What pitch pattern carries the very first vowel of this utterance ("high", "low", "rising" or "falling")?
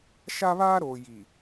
high